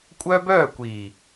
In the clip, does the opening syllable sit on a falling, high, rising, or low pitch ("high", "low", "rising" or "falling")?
high